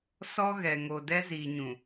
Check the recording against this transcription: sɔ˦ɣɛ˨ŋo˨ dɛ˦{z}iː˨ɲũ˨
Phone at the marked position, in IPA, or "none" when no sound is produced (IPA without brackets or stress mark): z